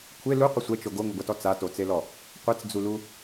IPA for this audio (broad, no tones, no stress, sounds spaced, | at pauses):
kʷʰ e l u qʷ ɪ sʷ ɛ t͡ʃ o ɡ o ŋ o ɡʷ a t ɔ t͡s a t o t͡s e l ɔ | qʷ e t͡s d͡z u l u